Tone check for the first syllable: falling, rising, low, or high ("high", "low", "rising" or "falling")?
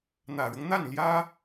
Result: low